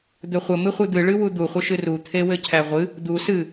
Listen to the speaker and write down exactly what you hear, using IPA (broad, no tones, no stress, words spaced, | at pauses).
d̪ɵχʷə mɨχʷɨd̪ɨ ɭɨwud̪u χʷəʃɨru t̪ʰewɘcʰæʁʷɨ | d̪u sɨ